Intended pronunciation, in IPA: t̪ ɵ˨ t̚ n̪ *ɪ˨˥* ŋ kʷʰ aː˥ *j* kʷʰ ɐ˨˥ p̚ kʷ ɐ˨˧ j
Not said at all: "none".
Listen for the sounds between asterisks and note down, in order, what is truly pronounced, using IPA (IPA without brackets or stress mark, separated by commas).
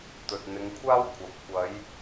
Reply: ɪ˨˧, w